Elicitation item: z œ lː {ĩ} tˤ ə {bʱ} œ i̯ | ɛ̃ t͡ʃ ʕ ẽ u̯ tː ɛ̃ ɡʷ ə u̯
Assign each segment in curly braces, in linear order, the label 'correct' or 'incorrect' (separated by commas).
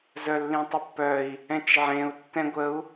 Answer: correct, incorrect